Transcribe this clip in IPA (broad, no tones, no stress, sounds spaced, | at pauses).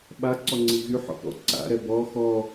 ɓ a ǀ ɔ ŋ͡ǀ i ɣ y ħ ɔ̰ k ɔ̰ ǀ a̰ ɾ ɛ b ɔ x ɔ